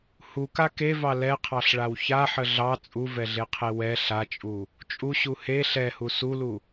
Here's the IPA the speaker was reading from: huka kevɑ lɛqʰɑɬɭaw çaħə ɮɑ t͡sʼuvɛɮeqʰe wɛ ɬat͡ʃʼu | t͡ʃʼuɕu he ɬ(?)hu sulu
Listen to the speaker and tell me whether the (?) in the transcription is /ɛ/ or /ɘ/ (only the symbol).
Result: ɛ